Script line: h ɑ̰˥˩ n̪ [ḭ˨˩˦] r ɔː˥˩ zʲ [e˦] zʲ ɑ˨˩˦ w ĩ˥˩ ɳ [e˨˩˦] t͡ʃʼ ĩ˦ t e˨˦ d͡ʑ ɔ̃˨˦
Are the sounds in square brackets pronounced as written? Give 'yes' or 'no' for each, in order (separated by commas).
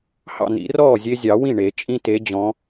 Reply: yes, yes, yes